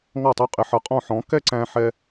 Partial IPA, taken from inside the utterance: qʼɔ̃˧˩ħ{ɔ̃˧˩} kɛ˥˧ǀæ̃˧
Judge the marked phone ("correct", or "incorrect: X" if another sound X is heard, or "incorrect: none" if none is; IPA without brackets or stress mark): incorrect: ɔ̃˩˧